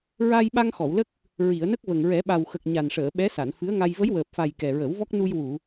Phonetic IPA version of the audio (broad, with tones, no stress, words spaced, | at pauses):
ɹa˧jɓa˧ŋ xɔ˨˩˨wlə˦˥k̚ | ɹi˨˩˨ə̯nə˦˥k̚və˨˩ŋ ɹɛ˨˩˦ɓa˨˩w xə˨˩k̚ ɲa˨˩nʂəː˨˩˨ ɓɛ˧˥sa˨˩˨nfɨ˧˥ə̯ŋa˧j və˧˥jwəː˨˩p̚fa˨˩j kɛ˨˩ɹə˨˩˦wvɔ˦˥k̚ nu˧jwu˨˩˨